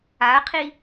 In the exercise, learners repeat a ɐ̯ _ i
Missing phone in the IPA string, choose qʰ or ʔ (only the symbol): qʰ